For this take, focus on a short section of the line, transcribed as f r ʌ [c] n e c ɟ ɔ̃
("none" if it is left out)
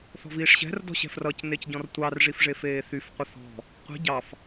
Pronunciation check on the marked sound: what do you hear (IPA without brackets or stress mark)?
c